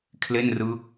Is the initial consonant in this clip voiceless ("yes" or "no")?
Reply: yes